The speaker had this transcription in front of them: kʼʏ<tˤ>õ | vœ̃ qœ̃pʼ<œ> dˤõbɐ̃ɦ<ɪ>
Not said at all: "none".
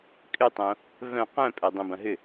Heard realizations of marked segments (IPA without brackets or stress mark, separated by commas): tˤ, œ, ʏ